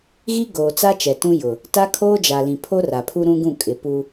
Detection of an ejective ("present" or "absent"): present